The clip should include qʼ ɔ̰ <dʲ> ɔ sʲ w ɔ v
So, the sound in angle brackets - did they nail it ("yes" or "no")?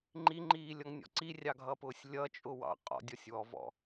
yes